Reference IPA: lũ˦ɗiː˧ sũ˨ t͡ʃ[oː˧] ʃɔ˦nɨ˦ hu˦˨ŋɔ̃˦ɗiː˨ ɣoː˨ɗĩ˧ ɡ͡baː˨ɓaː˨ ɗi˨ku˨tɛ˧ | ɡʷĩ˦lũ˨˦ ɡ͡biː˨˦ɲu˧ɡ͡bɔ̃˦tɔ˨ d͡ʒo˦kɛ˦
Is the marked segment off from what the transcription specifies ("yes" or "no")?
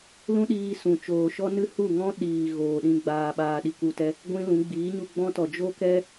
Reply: yes